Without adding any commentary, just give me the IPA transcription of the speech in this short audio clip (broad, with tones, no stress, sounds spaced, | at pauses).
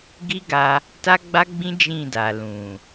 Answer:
ɡ i˦ ɡ a˧ | t a˦ ɡ͡b a˦ ɡ͡b ĩ˦ d͡ʒ ĩ˦˨ d a˨ l ũ˨